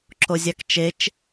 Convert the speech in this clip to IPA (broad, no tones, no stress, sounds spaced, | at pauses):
ǁ o zʲ a k t͡ʃ e t͡ʃ